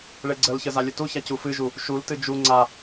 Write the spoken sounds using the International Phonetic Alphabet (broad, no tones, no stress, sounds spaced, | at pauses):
ɭ e ɡ͡ǀ ə l ç ə z a lʲ ə t u ç a c u f ɨ ʒ u | ʃ u l t ɨ d͡ʒ u ŋ͡ǀ a